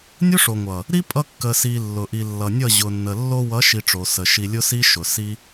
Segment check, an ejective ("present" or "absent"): present